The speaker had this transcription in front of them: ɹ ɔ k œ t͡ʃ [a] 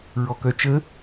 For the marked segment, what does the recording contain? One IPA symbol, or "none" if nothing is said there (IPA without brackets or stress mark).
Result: ə